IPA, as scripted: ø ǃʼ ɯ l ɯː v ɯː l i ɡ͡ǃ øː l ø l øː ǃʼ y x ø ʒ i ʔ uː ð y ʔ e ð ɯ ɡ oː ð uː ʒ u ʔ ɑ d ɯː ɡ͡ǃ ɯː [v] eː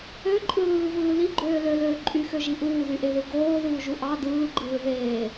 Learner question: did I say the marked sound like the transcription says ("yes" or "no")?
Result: no